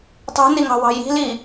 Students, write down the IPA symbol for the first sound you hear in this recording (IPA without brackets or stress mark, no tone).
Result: tˤ